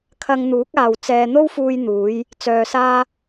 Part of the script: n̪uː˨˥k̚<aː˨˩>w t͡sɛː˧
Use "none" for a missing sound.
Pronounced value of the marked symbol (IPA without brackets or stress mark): aː˨